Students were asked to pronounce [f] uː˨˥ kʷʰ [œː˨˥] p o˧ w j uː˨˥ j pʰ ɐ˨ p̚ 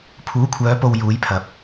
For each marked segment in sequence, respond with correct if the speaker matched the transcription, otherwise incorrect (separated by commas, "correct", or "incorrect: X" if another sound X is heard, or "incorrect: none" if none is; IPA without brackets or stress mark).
incorrect: pʰ, correct